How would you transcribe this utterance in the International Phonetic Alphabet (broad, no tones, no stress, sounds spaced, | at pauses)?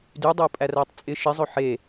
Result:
d y dˤ ɵ u̯ pʼ æ r æ tˤ t͡sʼ ɪ ʃ ɪ zˤ ɵ ħ e